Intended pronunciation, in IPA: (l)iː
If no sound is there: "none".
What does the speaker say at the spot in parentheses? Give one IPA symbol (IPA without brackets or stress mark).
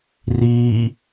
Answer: r